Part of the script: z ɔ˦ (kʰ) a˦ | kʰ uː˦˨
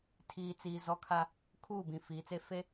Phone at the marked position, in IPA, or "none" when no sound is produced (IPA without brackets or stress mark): kʰ